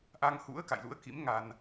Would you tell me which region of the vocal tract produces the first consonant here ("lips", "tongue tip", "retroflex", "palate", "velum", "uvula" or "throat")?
throat